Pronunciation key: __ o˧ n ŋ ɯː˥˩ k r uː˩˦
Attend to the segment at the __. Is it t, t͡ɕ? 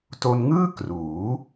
t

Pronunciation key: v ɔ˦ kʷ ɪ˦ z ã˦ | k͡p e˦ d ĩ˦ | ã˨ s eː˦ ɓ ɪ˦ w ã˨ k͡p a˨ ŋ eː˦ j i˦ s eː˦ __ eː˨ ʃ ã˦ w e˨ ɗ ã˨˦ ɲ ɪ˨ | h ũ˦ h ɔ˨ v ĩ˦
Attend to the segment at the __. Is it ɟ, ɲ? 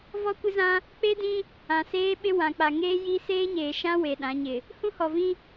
ɲ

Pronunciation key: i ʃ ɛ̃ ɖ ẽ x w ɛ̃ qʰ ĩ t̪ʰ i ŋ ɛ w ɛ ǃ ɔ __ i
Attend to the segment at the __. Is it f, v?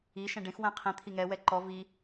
v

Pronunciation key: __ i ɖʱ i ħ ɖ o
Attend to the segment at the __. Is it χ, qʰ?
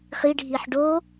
χ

